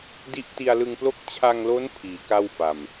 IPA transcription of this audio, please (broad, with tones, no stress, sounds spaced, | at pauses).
d i˦˥ ʔ t i˧ a̯ l ɯ˧ ŋ p l o˥˩ k̚ t͡ɕʰ a˧ ŋ l o˦˥ n pʰ iː˩˦ k a˥˩ w f a˨˩ m